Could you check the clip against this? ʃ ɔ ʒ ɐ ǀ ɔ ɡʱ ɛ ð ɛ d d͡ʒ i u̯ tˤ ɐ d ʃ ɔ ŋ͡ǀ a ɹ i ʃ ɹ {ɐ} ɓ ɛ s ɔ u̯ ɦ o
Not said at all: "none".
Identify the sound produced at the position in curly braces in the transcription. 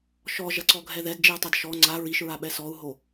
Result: a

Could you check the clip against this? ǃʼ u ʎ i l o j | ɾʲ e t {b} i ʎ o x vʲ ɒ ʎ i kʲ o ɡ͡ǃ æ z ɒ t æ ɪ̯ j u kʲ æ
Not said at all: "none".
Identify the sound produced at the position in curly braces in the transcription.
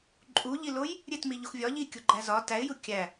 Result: m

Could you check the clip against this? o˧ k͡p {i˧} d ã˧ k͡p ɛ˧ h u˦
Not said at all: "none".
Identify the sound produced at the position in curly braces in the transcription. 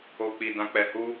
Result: i˧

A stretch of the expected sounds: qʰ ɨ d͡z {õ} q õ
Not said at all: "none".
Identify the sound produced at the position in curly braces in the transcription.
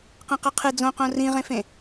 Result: õ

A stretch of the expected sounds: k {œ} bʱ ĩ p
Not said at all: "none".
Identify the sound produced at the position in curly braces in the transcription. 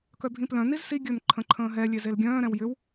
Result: œ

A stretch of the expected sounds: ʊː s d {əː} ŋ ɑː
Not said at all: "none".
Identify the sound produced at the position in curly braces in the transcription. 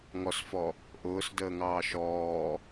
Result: əː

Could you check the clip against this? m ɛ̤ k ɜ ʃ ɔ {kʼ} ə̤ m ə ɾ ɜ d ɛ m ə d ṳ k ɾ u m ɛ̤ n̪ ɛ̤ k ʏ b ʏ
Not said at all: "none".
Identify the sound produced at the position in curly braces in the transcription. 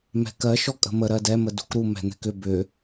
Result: kʼ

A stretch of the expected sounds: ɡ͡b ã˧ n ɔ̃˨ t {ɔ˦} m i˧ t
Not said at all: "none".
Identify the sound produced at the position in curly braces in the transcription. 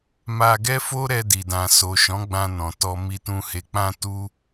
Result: ɔ˧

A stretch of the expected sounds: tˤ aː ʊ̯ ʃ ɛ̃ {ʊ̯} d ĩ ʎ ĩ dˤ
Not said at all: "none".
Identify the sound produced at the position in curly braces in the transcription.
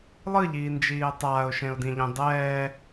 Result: ʊ̯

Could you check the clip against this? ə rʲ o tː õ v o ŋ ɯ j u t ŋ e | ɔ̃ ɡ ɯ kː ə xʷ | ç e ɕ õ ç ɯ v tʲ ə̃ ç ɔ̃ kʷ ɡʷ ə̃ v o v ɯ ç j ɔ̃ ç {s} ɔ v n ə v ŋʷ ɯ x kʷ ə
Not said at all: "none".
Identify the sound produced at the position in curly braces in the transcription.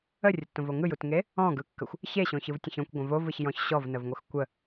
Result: ɕ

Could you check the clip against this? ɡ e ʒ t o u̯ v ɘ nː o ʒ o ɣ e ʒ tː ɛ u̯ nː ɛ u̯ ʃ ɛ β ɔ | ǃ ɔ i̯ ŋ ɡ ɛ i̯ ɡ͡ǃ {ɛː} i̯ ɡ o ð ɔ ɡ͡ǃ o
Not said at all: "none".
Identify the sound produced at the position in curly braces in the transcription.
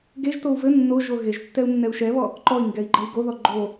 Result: ɛ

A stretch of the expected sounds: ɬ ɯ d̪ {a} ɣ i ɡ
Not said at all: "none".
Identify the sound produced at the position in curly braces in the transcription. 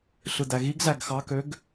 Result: æ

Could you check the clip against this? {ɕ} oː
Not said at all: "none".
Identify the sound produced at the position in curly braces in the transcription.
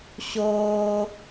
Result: ɕ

